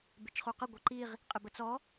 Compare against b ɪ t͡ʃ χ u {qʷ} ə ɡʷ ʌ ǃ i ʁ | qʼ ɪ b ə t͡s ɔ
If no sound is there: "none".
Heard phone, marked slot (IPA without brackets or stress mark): q